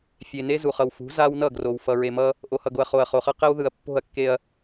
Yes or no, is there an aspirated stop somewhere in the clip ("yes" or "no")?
no